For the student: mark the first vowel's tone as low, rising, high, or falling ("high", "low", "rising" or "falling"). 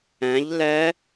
rising